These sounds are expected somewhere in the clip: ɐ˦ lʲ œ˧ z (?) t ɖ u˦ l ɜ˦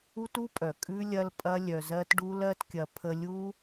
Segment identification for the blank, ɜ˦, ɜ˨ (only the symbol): ɜ˦